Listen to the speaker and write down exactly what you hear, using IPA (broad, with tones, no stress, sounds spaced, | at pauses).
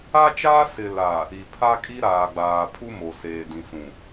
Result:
a˦ t͡ʃ aː˦ s ɪ˨ l a˨ | i˨ pʰ a˦ kʼ i˦ ɾ aː˨ ɡ͡b aː˨ pʰ u˦ m o˨ s eː˨ d ĩ˨ s ũ˨